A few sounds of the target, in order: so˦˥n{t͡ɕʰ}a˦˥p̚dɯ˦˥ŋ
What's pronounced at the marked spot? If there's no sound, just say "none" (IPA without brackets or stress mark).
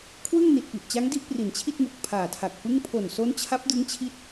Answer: t͡ɕʰ